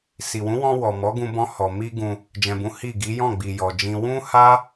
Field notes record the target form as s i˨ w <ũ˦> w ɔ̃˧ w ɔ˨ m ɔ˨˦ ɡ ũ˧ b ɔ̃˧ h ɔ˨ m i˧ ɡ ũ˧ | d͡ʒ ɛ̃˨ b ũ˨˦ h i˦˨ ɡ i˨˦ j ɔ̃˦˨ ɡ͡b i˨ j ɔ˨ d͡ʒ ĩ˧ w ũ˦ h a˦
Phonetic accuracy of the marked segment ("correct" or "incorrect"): incorrect